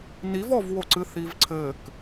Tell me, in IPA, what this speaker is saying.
n i v ɔ v w o ǀ ɨ θ i v ǀʰ ɘː k

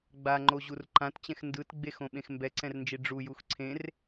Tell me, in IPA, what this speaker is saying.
ɡ͡b a ŋ͡ǃ o ʑ u r ǃ ã t t͡ɕ ɛ̃ x n d ɯ t ɡ͡b e x õ ɓ ẽ x m b ɛ ǀ ɛ̃ r n d͡ʒ i ɖ͡ʐ u j u x ǀʰ ẽ r

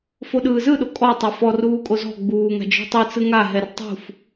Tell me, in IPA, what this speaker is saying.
f o ɗ ɯː z ɯ ɗ o kʼ ɔ tˤ a f ɔ r uː kʼ o z ɔ̤ ɡ͡b uː ŋ a̤ d͡ʒ o̤ tˤ i t͡s ɯ ŋ a ɦ ɛ r tˤ ṳ f

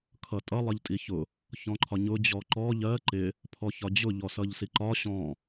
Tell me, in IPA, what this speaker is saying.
kʰ ʌ tʼ ʌ lˠ ʌ ʎ tʼ i ç ʊ | ç ɔ̃ ǃʰ ɒ ɲ ʊ d͡ʑ ɔ ǃ ɔ ʎ ɜ ǃ ɪ | pʰ ɔ ç ɒ d͡ʑ ʊ ʎ ɔ s ʌ ʎ s i ǃ ɒ ɕ ɔ̃

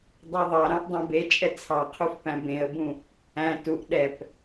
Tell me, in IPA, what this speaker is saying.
dˤ ɑ ðˤ ɑ ɾ ɑ̃ ʔ dˤ ɑ̃ b e t͡ʃʼ ɛ t͡sʰ ɑ qʰ u f p æ̃ b ẽ ə̯ b ũ | æ̃ t u ʔ ɗ ɛ p

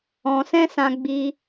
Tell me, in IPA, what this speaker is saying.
ɔ̃˧ s ɛ̃˦ s ã˧ ɡ͡b i˦

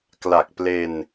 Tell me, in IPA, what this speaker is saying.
k l a˨˩ k̚ p l e˧ n

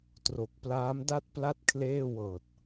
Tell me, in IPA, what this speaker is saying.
t r o˨˩ k̚ p l aː˦˥ m d a˥˩ t̚ p l a˥˩ t̚ kʰ l eː˥˩ w ɤː˨˩ t̚

